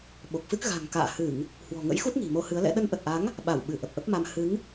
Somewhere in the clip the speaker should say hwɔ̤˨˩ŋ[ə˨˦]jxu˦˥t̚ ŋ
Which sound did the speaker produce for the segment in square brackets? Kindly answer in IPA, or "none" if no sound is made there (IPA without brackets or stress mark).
ə̰˧˥